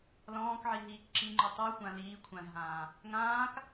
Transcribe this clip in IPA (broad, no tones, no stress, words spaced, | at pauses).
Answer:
lɔ̃ːkʕi ɦiːkǁiŋ͡ǃu tˤuxʷã liː kʷʰãzɦãː | ŋãːk